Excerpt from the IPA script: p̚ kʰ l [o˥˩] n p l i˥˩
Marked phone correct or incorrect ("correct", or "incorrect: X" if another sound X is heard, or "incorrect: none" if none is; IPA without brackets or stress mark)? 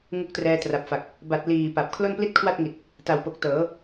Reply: correct